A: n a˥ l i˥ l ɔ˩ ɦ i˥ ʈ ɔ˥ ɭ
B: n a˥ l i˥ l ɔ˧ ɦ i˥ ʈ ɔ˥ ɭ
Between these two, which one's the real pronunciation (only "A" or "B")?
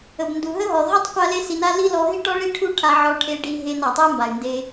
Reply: B